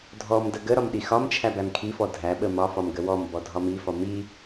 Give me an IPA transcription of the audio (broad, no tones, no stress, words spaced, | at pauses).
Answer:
dʱɔmdə ɡəɾɒm ɗixɒmt͡ʃʰæ bæmkʰifɔ dʱæɓə mɒfɒm ɡəwɔmbɔ dʱɒmifɒ mi